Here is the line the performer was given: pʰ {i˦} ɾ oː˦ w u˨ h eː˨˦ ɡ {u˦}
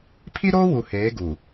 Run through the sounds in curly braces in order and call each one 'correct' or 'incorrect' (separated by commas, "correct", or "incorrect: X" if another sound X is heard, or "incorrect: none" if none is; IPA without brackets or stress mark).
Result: correct, incorrect: u˨